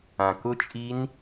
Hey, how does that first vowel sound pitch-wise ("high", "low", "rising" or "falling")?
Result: low